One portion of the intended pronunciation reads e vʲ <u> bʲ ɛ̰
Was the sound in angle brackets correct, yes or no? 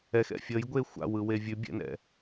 no